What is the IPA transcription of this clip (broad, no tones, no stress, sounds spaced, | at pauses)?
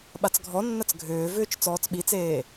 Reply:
ɓ a t͡s ɡʱ ɔ nː ɐ t͡s ɡʱ ʏː v ʏː t͡ʃ t͡s ɔː t͡s ɓ i t͡s eː